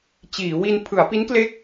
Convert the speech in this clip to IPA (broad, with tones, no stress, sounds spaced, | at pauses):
t͡ɕ iː˩˦ w i˧ n pʰ ɯ˩˦ a̯ p i˦˥ n k l e˦˥ k̚